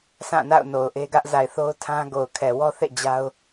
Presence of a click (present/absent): absent